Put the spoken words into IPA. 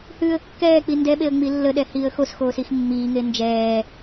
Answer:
h ʉː ə̯ kː ɛː k͡p i n d ɛ ɓ e ə̯ ŋ͡m i lː ə ɗ ɛ h iː ə̯ x o s x oː s i x mː iː ŋ e n d͡ʒ ɛː

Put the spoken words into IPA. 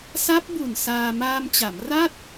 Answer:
s a˦˥ p̚ b u˨˩ n s aː˧ m aː˧ m t͡ɕ a˩˦ m r a˥˩ t̚

